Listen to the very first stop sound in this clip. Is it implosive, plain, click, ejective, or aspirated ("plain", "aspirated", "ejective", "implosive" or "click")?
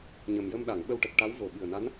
implosive